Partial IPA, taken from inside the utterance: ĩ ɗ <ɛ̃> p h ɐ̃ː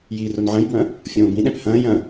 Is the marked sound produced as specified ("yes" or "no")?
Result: yes